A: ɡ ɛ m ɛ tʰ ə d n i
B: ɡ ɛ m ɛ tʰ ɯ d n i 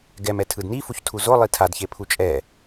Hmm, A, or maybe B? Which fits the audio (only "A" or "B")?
B